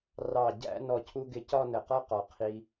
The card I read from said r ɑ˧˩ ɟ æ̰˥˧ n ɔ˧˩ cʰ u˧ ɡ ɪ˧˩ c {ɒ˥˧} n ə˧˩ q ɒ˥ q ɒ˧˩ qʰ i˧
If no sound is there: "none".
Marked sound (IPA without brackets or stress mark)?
ɒ˥˧